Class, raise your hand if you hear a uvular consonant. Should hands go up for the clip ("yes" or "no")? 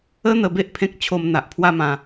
no